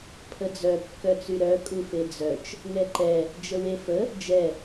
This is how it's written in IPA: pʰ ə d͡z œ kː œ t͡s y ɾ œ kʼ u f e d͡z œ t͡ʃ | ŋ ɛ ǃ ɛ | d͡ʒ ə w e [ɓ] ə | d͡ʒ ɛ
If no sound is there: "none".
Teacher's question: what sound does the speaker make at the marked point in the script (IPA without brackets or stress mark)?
f